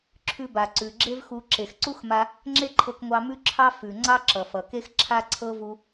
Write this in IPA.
ǁʰ ʉ˧ b a˩ ǀ ʉ˩ ɡ͡ǁ e˥ v x u˧ ǁ e˩ x ǀ u˥ x m a˧ | ŋ͡ǁ e˥ ǃʰ ɤ˧ k ŋʷ ɑ˧ m ʉ˥ ǁʰ ɑ˥ f ʉ˩ ŋ͡ǀ ɑ˥ ǁ ʌ˩ f ʌ˩ k e˥ x ǁʰ a˥ ǀʰ ɤ˥ v u˧

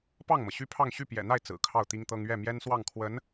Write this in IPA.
p ɑ˥˩ ŋ m ɤ˩ ɕ y˥˧ pʰ ɑ˥˧ ŋ ɕ y˥˩ p j ɛ̰˨˩ n̪ a˥˩ ɪ̯ t͡s ɹ̩˨˩ kʰ ɑ˥˩ ʊ̯ t̪ i˥ ŋ t̪ ɤ˥ ŋ ɥ ɛ˥˩ m j ɛ˥ n s w ɑ˥˩ ŋ kʰ w ə˧˥ n

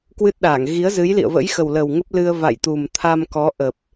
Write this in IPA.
k w ɨ˦˥ t̚ ɗ aː˧˩ ŋ ɣ i˨˦ ə̯ z ɨ˨˦ j l ḭ˧˨ ə̯ v ə̰˧˥ j x ə˨˩ w l ə˨˩ w ŋ ə˦˥ p̚ l ɨ˧ ə̯ v a̰˧˨ j t̪ u˨˩ m t̪ʰ a˧ m k ɔ˨˦ ʔ ə˨˩ p̚

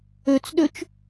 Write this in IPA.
ø t͡s ɗ ø t͡ʃ

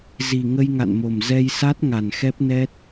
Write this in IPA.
z i˨˩ ŋ ə˧ j ŋ a̰˧˨ n m o˨˩ m z ɛ˧ j s a˦˥ t̚ ŋ a˨˩ n x ɛ˦˥ p̚ n ɛ˦˥ t̚

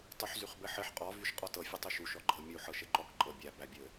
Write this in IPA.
tˤ u ħ z y χ b ɘ ħ ɘ ħ qʼ ɔ v y ʃ qʼ ɔ t ɤ fʲ ɘ tˤ y ʃ u ʃ ɔ ɡ͡ǃ ɤ mʲ u ħ ɤ ʃ ɘ ǃ ɔ k ǃʼ ɤ bʲ æ b æ bʲ ɘ

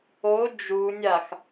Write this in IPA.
o d͡ʒ u nʲ a x

